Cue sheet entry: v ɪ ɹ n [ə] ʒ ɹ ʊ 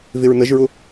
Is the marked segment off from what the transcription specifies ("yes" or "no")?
no